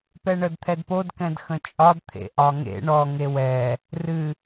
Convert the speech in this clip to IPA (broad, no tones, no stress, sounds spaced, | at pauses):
p ɛ ɳ ə d t̪ʰ ɛ d p o d k ɛ̃ d x ə̃ t͡ʃʼ ɒ d t̪ʰ ḛ ʔ ɒ ŋ ḛ ɳ ɔ ŋ e w ɛ | r ɨ